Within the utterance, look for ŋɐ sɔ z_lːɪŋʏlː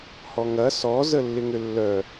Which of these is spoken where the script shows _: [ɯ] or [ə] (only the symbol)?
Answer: ə